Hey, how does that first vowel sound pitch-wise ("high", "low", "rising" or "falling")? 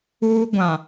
high